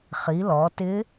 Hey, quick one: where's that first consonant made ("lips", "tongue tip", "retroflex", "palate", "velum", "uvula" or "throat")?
uvula